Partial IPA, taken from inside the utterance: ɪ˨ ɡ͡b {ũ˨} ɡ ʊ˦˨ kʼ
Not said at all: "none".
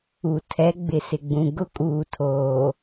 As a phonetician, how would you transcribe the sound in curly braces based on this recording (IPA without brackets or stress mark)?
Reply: ũ˨